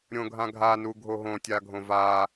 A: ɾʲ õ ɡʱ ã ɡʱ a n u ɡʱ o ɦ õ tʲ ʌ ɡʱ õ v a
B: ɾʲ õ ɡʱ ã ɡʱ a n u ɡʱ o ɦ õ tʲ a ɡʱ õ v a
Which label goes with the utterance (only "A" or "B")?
B